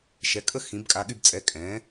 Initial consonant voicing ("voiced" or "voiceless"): voiceless